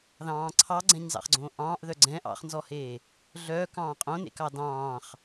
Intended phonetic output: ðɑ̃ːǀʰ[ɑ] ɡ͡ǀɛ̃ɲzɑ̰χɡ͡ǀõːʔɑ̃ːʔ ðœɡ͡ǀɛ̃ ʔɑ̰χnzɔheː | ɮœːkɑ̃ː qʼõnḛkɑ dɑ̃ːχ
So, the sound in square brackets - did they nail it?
yes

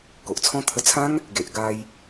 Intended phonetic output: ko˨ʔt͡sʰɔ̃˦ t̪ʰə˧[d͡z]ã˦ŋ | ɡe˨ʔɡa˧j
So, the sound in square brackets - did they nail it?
no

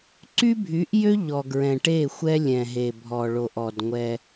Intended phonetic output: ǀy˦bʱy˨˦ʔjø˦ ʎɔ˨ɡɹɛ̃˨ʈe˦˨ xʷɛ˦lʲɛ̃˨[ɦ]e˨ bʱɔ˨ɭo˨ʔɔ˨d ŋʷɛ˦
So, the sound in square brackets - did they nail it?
yes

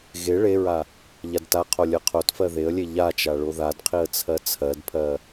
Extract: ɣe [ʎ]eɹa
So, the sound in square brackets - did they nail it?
no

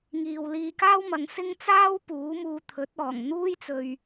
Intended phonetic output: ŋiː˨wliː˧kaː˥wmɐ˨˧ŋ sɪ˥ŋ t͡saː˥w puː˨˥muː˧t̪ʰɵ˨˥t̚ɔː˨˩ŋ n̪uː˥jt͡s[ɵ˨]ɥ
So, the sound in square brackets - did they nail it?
yes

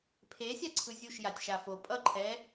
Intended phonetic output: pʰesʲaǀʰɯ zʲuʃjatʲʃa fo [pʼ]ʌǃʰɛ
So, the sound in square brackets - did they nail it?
yes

